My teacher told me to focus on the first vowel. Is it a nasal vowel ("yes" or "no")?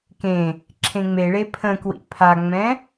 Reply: yes